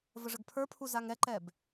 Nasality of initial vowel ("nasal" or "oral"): oral